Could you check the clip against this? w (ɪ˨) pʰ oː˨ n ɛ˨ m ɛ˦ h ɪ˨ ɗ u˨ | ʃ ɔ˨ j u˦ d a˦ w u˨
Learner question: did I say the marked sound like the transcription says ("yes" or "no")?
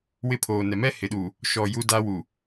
no